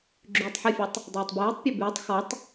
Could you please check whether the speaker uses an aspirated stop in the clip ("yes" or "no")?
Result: no